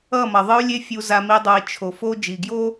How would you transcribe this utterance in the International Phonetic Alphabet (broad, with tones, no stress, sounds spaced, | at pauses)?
ʌ˦˨ m ʌ˨ ðˤ ɯ˦ y̯ lʲ e˦ fʲ u˨ z a˨ m i˨ dˤ o˨ i̯ t͡ʃʰ o˨ f o˦ d͡ʒ i˨ ɡ j o˦